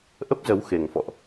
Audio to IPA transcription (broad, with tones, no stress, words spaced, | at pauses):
ʔə˦˥p̚zə˨˦w xe˨˩ŋfɔ̰˧˨ʔ